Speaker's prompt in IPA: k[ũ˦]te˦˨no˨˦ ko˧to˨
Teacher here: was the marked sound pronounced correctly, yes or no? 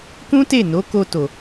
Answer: yes